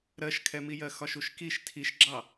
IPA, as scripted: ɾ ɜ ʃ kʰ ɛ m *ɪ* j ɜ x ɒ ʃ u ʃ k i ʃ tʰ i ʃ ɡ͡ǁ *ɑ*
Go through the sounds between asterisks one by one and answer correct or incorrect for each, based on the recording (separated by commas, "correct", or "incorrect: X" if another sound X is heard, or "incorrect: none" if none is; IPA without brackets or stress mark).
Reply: incorrect: i, correct